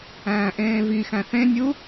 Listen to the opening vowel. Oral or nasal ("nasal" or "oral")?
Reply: nasal